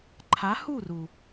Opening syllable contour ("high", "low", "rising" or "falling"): rising